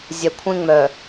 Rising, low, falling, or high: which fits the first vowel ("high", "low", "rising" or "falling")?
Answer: low